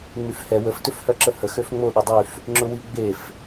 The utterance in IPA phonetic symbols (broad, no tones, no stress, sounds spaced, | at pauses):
ŋ͡m y f h ɛ w ə f t ʏ f h œ ǁ ə h ə x ø f ŋ͡m o ɗ ʊ dˤ y f | ŋ͡ǁ ʊ w i ɡ͡b e f